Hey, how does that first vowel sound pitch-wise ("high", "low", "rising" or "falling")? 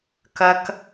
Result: high